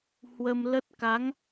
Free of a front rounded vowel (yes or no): yes